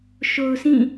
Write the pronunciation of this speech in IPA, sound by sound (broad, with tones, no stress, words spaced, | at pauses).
ʃo˨ʊ̯sĩ˦˨